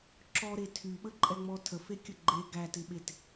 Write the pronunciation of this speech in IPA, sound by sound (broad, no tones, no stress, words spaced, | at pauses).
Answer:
ǁɔɾe tʰyɓəǃʼɛŋ͡mɔ tʰəfekʲə ɡ͡ǃe ɡætɪɓet